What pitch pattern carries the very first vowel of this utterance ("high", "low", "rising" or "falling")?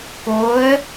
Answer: rising